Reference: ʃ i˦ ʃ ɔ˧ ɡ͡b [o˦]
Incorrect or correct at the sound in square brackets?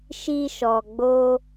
correct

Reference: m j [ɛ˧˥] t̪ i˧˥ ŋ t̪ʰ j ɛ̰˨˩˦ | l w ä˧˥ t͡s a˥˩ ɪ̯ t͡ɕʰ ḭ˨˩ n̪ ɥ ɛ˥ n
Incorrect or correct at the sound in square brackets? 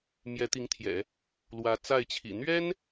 correct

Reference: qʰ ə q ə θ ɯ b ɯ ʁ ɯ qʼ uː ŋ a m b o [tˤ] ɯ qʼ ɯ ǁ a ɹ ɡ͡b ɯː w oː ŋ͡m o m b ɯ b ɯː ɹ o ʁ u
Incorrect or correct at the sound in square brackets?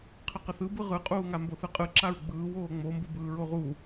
incorrect: θ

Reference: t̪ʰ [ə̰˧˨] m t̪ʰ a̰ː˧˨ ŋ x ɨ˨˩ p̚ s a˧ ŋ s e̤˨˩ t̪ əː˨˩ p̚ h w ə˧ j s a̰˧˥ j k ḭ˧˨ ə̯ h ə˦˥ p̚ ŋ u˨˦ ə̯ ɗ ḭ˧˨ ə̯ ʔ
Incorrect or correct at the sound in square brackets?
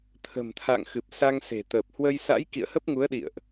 incorrect: ə̤˨˩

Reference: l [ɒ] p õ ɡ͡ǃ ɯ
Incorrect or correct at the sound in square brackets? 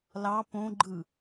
incorrect: ɑ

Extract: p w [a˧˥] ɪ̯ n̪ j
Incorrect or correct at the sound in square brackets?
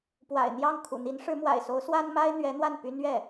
incorrect: a̰˨˩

